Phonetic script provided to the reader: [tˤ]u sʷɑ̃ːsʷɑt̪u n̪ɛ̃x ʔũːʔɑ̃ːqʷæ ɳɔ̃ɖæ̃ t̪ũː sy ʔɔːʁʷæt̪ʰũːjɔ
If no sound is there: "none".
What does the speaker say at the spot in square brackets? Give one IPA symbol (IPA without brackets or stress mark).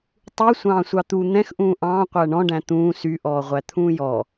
tˤ